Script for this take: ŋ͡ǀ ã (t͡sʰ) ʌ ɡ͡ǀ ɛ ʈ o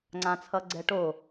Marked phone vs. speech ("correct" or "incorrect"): correct